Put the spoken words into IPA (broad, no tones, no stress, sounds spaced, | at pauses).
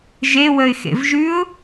ʒ e w ə ɪ̯ x ḛ v ʒ ʉ ʊ̯